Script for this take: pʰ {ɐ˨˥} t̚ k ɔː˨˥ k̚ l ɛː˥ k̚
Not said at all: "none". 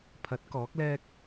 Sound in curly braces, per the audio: ɐ˨˥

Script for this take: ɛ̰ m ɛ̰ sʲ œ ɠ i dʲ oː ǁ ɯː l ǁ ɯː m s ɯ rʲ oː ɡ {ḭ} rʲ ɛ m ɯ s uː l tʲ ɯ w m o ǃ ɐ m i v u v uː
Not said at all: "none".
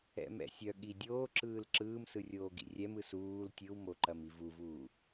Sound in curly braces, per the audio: ḭ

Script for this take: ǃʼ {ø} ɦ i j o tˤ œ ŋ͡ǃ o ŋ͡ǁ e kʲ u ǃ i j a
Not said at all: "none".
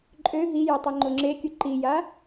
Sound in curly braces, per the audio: ø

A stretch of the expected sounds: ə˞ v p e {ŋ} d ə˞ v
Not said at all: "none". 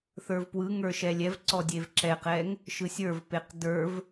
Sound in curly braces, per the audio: q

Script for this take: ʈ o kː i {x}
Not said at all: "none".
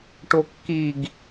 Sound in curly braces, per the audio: ɡ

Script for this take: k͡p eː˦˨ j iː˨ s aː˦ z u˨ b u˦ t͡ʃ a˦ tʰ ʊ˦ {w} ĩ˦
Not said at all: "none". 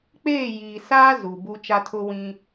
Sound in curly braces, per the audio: w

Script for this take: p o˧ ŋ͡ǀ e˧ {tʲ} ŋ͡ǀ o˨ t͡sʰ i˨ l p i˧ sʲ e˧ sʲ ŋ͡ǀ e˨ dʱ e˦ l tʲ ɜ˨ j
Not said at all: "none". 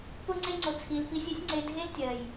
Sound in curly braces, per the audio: none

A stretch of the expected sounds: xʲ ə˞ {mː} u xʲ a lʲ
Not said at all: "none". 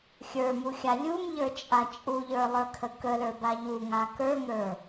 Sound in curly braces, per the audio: m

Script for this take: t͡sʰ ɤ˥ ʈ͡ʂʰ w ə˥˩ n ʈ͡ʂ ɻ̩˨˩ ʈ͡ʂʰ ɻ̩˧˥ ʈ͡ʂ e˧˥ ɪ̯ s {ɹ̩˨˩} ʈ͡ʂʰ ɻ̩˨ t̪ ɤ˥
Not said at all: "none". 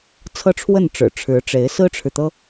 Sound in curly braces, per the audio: ɹ̩˥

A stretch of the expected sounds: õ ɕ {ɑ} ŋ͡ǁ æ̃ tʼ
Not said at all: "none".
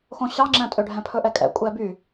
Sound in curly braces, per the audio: ɑ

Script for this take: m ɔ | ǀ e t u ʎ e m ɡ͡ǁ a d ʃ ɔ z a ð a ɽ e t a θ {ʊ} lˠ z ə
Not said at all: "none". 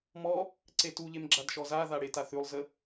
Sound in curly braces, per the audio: ʉ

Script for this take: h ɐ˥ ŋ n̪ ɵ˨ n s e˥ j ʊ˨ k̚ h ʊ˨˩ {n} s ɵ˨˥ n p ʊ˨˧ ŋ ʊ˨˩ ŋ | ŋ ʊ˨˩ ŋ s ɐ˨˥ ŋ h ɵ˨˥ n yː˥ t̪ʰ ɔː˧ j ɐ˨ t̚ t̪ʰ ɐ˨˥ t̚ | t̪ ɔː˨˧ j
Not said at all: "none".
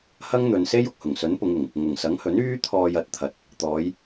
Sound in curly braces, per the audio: ŋ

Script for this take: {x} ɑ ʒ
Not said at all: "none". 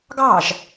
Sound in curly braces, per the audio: ɡ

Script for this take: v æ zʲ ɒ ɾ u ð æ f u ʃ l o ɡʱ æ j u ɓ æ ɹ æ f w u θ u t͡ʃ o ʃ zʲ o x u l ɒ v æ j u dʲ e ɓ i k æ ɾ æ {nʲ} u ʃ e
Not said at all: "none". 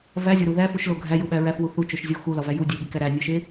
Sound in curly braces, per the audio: nʲ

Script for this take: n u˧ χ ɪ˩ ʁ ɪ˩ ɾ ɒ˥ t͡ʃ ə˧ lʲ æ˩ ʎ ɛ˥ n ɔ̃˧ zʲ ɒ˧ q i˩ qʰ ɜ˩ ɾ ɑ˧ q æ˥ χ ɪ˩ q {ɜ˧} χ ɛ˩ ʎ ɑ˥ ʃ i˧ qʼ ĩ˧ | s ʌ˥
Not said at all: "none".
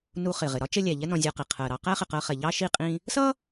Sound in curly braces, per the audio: ɜ˧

